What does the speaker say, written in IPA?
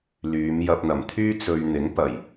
l yː˨˧ m j ɐ˨ p̚ n̪ ɐ˨˩ m t̪ʰ yː˧ t͡s ɵ˨ ɥ n̪ ɪ˨˥ ŋ p ɐ˨˩ j

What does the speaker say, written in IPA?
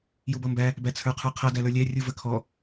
j u b ʌ m b æ | b æ t͡sʰ ə˞ qʰ ə˞ qʰ ʌ d æ l ə˞ lʲ æ rʲ u v ə kʰ ɔ

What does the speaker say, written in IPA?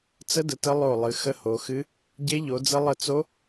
t͡s ə˦˥ d ə˨˦ t ə˦˥ lˠ o˦˨ lˠ ɨ˨˦ x ə˦˥ h o˨˦ x ɨ˦˥ | ɟ e˦˥ ʎ o˨˦ d͡z ə˦˥ lˠ ə˦˨ t͡s o˦˥

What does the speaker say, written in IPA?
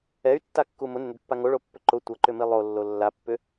ɛ y̯ tː a kː u m ʊ n ʏ n ʏ d pː a ŋ o ɭ o pː ʏ ǃ ʊ tʷ ɐ ǃ ʏ m i lˠ o lː o lː a pː ʏ

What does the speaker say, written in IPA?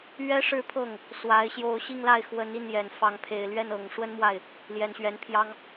ɥ ɛ˥ ʂ ɻ̩˥˧ pʰ ɤ˥˩ ŋ | s w a˧˥ ɪ̯ ɕ j o˥˧ ʊ̯ ɕ i˥˧ ŋ l a˥˩ ɪ̯ x w ə˧˥ n i˥˩ n j ɛ˨˩ n f ɑ˧˥ ŋ pʰ e˨˩ ɪ̯ l ɥ ɛ˥˩ n ɤ˨˩ ŋ ʂ w ə˥ n m w a˥˩ ɪ̯ | l j ɛ˨˩ n ɕ ɥ ɛ˧˥ n pʰ j ɑ˥ ŋ

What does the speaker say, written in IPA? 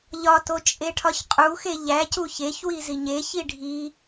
ʎ ɒ t o t͡ʃʼ e ʈʰ ɒ ç qʼ u x e ʎ æ c u ç e ç w i z i ɲ e ç i ɖʱ i

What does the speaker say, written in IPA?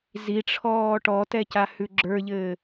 z i ʈ͡ʂʰ ɔː ʈ ɔ t ɛ c a h ʉ ɡ͡ǁ ə˞ ʎ ɘː

